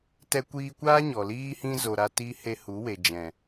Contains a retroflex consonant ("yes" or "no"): no